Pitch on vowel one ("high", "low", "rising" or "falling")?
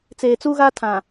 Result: low